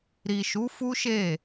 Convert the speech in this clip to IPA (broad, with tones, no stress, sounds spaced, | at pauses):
ɾ i˨ ʃ u˨˦ f u˦ ʃ e˦˨